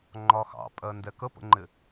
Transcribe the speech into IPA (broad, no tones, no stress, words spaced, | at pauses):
ŋ͡ǃɒxɑ̰pʼɜ ndɛkəpə̰ŋ͡ǃɪ